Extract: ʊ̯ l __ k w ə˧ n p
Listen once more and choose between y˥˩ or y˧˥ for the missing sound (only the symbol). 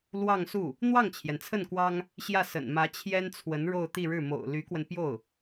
y˧˥